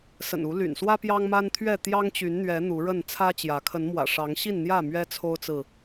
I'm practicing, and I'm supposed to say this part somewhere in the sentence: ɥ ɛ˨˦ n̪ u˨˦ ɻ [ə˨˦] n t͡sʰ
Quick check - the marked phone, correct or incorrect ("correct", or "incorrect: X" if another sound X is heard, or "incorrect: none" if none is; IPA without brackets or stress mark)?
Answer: incorrect: ə˥˨